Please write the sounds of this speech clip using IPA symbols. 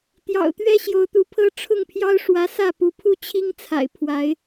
t̪ j ɑ̰˨˩ ʊ̯ t̪ ɥ ɛ˦ ɕ j o˨˦ ʊ̯ t̪ u˨˦ pʰ ɤ˦ ʈ͡ʂʰ ʊ˥˨ ŋ pʰ j ɑ˦ ʊ̯ ʂ w ä˨˦ s ä˥˨ p u˨˦ pʰ u˦ t͡ɕʰ i˦ ŋ t͡sʰ a̰˨˩ ɪ̯ pʰ w a˨˦ ɪ̯

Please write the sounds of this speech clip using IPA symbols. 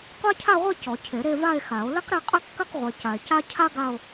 qʷ a˥ cʰ a˥˧ ʁʷ e˥˧ c ɔ˨˩˦ cʰ e˨˩˦ ɾ e˥˧ v a˥˧ e̯ x a˨˩˦ o̯ l ɘ˥ q ɾ e˥˧ qʼ e˥˧ q k ɘ˥˧ q ʁʷ e˨ c a˨ e̯ c a˥ cʰ a˥ ɡ a˥˧ o̯

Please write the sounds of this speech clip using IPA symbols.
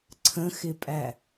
ǀʰ ə̃ x ɪ pʼ æ

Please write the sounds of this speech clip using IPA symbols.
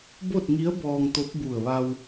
b o˥˨ t̚ ŋ i˧˥ ə̯ b ɔː˧ ŋ t̪ o˧˥ p̚ b u˧˩ ə̯ ʋ a˧ w

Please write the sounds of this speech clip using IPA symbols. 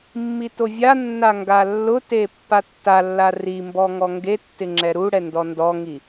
mː i t o vʲ a nː a ŋ ɡ a lː ʊ t e pː a tː a lː a r i m b ɔ ŋ ɔ ŋ ɡ e tː ɪ ŋ͡ǁ ɛ ɾ u ɽ ɛ n d ɔ n d ɔ ŋ i

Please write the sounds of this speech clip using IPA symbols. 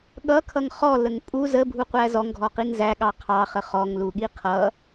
ɠ ʌ kʰ ʌ ŋ χ ɔ l ə ŋ pʼ u z ə bʱ u qʷ æ z ɔ ŋ ɡʱ ɔ q i ŋ z æ ɠ ɑ qʰ ɑ χ ə χ ɔ ŋ l u ɠ i qʰ ʌ

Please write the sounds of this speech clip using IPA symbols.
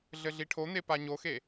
ɮ ɘ ɮ i ʈʰ o n̪ e p a ɲ o x e

